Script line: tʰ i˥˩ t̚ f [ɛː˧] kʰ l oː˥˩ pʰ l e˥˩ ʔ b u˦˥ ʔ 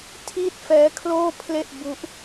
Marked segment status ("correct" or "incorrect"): incorrect